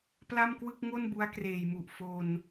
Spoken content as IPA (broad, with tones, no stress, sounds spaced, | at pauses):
p l a˥˩ m k w ɯ˥˩ k̚ ŋ o˥˩ n b u˦˥ a̯ k r eː˨˩ j m u˨˩ ʔ f o˧ n